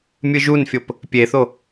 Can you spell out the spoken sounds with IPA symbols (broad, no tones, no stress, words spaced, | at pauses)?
mʲɯʒunfʲop | pʲeθo